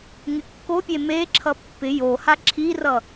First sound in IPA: ŋ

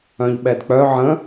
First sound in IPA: œ̃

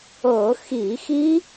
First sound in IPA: ɤ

